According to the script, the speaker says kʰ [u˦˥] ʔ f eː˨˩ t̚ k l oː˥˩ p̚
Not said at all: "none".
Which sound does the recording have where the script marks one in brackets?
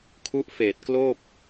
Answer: u˦˥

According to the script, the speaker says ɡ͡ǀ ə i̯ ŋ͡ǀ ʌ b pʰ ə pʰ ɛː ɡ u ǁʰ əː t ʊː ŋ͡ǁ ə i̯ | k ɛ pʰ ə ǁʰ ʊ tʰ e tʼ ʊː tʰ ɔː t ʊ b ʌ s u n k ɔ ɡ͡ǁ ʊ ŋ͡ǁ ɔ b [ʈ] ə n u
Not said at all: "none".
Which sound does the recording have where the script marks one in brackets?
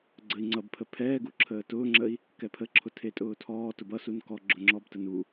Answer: t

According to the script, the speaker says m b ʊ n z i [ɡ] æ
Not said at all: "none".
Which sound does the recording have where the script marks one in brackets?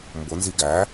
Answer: ɡ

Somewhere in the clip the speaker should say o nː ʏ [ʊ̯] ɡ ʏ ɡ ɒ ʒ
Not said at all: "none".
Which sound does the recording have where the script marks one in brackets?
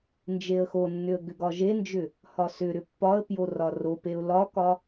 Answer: ə̯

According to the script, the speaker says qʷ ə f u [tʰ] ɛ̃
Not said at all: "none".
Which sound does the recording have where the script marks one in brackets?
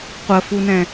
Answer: n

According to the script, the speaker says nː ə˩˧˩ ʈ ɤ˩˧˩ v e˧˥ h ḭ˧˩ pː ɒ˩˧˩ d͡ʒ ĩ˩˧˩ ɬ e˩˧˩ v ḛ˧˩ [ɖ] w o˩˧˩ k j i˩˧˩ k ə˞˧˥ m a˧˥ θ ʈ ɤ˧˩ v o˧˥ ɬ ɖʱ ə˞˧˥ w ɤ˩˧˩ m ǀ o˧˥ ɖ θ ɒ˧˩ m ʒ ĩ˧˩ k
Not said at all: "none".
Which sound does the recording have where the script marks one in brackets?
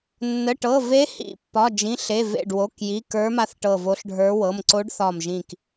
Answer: ɖ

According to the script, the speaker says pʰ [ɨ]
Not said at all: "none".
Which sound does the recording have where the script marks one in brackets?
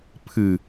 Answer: ɨ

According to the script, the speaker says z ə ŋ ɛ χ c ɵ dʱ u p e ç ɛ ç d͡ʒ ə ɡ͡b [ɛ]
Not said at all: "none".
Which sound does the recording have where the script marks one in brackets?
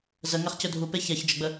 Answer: ə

